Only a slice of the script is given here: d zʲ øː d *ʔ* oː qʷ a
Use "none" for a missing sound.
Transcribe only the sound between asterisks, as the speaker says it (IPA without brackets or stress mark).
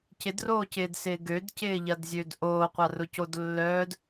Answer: ʔ